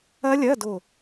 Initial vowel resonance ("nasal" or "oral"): oral